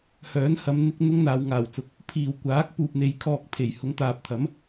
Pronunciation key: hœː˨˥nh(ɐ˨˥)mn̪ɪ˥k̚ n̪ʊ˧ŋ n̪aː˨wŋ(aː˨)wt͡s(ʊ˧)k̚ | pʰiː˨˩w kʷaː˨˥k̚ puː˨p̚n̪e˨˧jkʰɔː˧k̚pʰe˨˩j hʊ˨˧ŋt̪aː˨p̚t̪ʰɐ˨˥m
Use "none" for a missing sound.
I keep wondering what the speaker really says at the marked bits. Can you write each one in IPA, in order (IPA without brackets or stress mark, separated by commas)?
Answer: ɐ˨˧, aː˨˩, ʊ˨